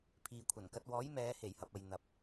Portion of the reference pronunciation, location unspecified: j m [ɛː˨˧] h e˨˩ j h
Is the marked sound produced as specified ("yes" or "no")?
yes